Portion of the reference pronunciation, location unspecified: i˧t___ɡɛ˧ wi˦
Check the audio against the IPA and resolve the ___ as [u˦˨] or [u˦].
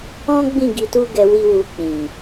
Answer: u˦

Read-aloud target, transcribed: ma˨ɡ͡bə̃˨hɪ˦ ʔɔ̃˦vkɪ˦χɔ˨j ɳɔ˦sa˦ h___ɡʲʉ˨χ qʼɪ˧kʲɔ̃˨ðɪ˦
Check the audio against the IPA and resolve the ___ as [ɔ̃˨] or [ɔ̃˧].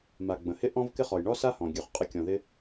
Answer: ɔ̃˨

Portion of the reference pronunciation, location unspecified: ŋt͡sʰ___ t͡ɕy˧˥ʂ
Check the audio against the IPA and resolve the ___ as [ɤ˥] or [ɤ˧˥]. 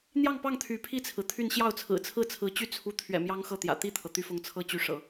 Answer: ɤ˥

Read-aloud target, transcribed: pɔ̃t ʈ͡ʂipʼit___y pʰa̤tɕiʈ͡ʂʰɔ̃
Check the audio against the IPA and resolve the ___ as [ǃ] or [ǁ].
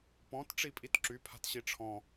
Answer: ǁ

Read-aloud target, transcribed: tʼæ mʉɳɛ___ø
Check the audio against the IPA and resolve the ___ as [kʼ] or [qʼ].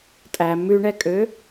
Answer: kʼ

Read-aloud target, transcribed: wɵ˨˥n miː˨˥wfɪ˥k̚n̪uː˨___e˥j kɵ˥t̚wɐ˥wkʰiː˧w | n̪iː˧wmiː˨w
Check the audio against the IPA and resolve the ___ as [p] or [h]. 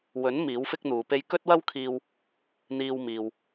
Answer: p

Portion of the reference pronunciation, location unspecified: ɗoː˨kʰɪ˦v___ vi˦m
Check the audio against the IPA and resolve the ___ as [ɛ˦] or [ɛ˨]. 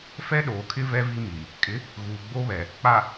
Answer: ɛ˦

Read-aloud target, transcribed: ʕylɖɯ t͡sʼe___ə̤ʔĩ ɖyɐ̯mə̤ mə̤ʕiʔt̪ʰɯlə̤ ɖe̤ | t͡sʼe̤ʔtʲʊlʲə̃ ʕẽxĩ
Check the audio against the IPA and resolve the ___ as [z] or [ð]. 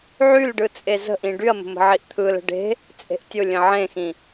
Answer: z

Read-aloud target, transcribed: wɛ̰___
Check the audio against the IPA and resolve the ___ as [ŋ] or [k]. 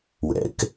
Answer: k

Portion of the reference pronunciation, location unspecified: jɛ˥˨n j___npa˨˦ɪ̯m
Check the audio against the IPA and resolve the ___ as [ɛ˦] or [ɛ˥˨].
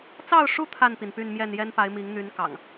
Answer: ɛ˦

